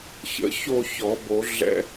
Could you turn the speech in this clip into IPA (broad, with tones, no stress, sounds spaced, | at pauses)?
ç ə̰˧˩ ç o˥˨ ç ɔ˨˩˦ b o˨˩˦ ɮ ɛ̰˦